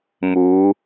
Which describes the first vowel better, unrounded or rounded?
rounded